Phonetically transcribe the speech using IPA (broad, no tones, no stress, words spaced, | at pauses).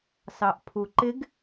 sɑʔpʰuǃɪɡ